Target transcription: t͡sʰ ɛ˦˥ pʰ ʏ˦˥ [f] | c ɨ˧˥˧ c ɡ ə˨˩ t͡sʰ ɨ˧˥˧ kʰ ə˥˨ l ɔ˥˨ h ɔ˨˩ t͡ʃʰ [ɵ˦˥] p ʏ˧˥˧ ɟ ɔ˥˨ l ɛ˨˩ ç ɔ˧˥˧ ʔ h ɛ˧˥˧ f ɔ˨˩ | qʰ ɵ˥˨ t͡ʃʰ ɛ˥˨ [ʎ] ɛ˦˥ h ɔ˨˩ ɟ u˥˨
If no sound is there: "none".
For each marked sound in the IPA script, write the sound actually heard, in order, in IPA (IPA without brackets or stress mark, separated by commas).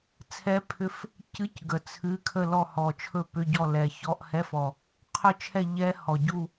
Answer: f, ɵ˥˨, ʎ